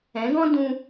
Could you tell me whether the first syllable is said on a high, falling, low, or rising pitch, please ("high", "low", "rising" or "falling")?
rising